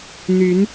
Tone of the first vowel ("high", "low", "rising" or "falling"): rising